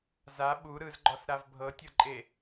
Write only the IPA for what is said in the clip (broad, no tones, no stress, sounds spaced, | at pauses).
z a ɓ u ɾ ɯ z ɡ͡ǃ ɔ s ɾ a v bʱ ɤ tʲ ɤ ǃʼ e